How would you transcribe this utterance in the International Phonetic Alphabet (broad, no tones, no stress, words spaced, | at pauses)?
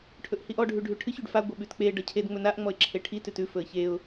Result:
ʈʰɵʔhiʔɔ ɖʱʉɖʱʉʈʰɨç ʉɖfa ɡʷəɓʉtk͡pe ɖʌcʰed ŋ͡mɵnaʔ ŋ͡mɔɪ̯ǁʰeʈʰi tʉtʉ fɵə̯çeʊ̯